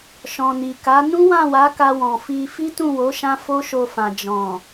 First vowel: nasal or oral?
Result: nasal